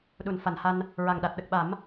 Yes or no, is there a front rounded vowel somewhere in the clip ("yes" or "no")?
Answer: no